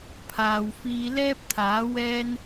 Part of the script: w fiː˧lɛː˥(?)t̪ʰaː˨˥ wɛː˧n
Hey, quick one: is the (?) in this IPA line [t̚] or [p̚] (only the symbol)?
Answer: p̚